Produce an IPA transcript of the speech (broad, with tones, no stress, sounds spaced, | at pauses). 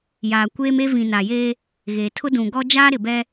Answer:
j aː˨ kʷ eː˦ m e˦ v ĩ˨ n a˨ j eː˦ | ɣ eː˨ tʰ ʊ˦ d ũ˨ ɡ ɔ˦ d͡ʒ aː˦ ɾ ɪ˨ b ɛ˦